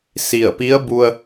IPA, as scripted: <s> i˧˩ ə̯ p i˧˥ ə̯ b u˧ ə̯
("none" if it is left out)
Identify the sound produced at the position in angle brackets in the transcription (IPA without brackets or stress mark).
s